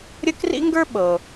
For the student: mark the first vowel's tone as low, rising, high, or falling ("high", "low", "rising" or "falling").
high